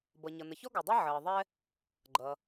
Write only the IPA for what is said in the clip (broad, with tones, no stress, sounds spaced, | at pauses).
b ʌ˩ ɲ ʌ˩ n ə˩ ç ɔ˥ ɡ ɔ˩ dˤ ɛ˥ ʕ əː˩ ðˤ ɛ˥ | ɡ͡ǃ ʌ˩